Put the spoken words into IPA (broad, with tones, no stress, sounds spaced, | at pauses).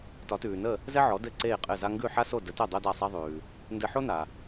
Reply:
t ɒ˩˥ t ʉː˩ n ə˥˩ | z ɛ˥ ʕ ɔ˩˥ d ɘ˥˩ ǀ eː˥˩ qʼ ɘ˥˩ z a˥ ŋ ɡ ʉ˥˩ ħ a˥ s o˥˩ d ə˩˥ t ɘ˥˩ dˤ o˥ d a˥˩ sˤ ɛ˥ ðˤ ʉː˩ | n d ɘ˧ ħ o˥ n a˩